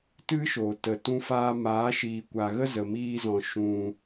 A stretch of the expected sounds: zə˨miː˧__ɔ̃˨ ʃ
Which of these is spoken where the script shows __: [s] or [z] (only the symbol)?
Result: z